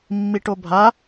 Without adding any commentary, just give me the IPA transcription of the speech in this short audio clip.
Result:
mːiʈobʱa

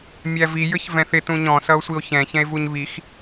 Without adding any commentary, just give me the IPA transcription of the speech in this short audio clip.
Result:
mʲævi jə˞çvɛ̃θɪ tũɲɔ̃ sʌo̯sʷio̯çɛ̃ çɛ̃e̯vuɲβix

